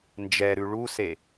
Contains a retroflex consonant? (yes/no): yes